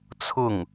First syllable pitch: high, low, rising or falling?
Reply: falling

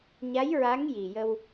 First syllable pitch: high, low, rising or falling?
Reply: rising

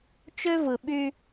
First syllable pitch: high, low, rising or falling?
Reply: high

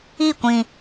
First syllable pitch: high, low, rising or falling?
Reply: falling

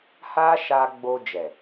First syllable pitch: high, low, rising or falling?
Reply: high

